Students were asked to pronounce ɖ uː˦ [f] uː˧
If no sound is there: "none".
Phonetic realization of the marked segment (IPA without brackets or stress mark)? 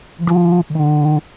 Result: ɓ